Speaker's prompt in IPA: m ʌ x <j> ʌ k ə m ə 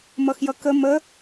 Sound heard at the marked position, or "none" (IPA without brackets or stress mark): j